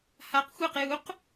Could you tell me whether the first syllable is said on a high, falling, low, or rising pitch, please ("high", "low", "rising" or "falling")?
rising